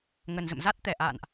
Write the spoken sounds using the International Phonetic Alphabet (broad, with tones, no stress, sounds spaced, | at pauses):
ŋ ə˨˩ n z ə̰˧˨ m z a˦˥ t̚ t̪ ɛ˨˩ ʔ a̰ː˧˨ n ʔ